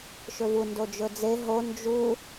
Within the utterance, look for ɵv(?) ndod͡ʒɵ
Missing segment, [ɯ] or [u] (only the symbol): u